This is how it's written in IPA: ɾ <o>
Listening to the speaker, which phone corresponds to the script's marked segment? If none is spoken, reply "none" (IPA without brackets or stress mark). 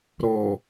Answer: ɔ